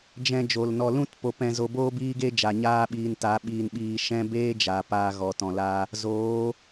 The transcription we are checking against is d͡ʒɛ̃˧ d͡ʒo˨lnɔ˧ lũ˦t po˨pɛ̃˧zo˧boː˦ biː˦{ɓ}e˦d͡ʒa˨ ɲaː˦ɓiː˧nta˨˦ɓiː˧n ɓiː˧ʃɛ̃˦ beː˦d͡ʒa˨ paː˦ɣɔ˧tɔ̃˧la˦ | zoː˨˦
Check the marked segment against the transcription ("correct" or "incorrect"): incorrect